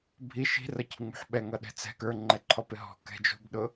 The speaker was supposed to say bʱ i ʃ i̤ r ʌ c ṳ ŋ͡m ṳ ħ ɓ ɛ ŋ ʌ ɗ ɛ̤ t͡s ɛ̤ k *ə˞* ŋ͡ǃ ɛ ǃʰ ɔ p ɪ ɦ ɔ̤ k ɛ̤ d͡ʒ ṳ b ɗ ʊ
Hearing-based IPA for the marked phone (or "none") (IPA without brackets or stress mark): ə˞